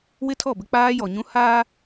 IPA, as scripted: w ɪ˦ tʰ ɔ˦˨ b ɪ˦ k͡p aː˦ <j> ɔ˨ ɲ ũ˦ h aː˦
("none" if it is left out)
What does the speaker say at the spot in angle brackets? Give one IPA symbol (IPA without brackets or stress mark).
j